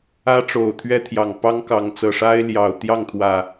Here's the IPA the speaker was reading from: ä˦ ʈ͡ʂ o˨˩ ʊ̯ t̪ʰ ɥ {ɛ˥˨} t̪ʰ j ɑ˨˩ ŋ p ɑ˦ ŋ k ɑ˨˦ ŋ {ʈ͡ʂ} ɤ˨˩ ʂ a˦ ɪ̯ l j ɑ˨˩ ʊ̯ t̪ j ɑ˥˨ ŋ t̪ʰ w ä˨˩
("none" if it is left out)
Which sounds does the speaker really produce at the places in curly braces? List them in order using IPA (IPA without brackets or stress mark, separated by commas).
ɛ˦, t͡s